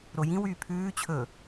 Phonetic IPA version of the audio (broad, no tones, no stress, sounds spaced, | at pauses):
ɾ o j ĩ w yː pʰ ʉː t͡ɕʰ ɵ